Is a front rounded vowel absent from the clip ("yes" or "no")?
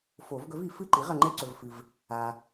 yes